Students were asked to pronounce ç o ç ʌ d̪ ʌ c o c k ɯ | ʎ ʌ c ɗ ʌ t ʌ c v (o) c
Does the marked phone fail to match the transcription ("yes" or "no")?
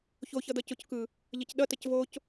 no